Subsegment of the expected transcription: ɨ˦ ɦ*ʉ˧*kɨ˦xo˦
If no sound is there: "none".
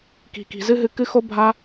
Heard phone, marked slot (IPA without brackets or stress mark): ɨ˧